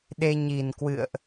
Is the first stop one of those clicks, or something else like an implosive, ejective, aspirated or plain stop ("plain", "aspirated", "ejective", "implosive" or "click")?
implosive